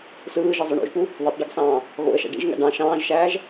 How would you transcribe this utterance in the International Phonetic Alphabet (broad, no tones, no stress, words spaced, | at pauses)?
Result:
sɯːʒizˤøɳ o̰ʒpu | ðetˤɖeɡsɑ̃ː | ɣo̰ə̯ʃæ̰ ɖḭʒŋæ̰ ɖɑ̃ ʃɑ̃ːʒʃæːʒ